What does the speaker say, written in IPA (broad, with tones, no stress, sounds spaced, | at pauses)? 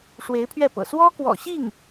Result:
ʂ w e˧˥ ɪ̯ pʰ ɥ ɛ˥˩ p ɤ̰˨˩ s w ɔ˥ k w ɔ̰˨˩ ɕ i˥˩ ŋ